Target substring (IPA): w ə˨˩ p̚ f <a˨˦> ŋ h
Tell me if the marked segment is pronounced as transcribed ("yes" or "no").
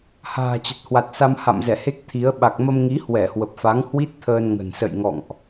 yes